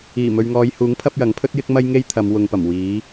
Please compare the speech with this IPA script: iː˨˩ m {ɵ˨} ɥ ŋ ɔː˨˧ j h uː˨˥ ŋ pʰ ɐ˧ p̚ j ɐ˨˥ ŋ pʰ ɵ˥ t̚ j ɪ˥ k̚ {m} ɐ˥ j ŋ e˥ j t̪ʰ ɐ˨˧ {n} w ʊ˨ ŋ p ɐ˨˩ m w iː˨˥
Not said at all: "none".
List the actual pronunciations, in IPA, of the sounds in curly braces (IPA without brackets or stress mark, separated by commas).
ɵ˨, m, m